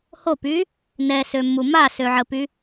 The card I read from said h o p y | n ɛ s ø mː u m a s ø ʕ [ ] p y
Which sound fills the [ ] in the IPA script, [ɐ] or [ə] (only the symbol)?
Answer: ə